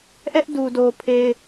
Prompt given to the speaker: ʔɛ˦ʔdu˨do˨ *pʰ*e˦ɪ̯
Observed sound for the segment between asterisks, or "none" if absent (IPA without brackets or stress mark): pʰ